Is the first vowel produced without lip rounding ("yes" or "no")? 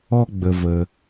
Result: no